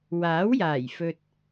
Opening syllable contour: rising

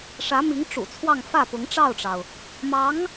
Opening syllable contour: rising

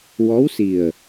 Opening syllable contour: rising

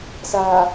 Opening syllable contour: low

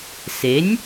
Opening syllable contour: rising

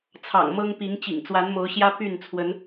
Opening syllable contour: low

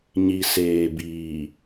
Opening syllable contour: low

